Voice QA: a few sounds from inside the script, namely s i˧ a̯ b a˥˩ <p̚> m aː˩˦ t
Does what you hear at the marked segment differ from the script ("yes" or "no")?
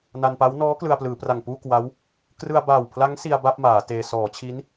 no